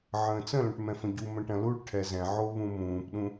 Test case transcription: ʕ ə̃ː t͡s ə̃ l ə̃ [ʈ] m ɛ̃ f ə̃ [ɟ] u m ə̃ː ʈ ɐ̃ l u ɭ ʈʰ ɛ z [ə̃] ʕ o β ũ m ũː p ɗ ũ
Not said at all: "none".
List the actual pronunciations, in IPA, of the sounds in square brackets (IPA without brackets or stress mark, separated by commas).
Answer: ʈ, ɟ, ɛ̃